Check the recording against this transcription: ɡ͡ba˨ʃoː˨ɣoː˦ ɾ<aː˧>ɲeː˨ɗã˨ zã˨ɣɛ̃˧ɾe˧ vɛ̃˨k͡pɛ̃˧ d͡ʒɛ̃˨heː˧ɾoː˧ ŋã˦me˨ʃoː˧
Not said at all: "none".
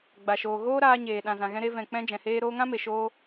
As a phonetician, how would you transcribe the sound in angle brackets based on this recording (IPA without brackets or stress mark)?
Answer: aː˧